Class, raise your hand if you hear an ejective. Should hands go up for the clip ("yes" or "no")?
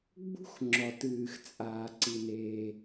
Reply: yes